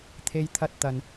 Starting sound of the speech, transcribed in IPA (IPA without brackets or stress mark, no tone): t̪ʰ